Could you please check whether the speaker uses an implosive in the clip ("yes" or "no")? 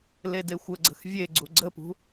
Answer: no